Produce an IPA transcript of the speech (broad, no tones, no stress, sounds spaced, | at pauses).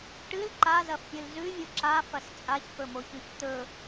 ʈ ɨ l ǃ a z ɐ f pʲ ɨ l z ʉ vʲ u ǁ a f ɐ s t͡sʼ a ç f ɵ m o ç ʉ ç t̪ ɵ